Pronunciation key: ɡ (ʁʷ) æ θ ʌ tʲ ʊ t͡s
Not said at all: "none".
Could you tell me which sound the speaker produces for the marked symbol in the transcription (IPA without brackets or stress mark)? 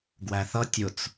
w